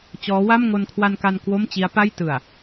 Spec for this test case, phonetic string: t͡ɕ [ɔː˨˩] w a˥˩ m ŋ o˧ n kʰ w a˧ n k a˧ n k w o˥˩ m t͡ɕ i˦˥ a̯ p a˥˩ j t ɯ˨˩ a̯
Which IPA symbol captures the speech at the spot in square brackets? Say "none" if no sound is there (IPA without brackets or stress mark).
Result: ɔː˦˥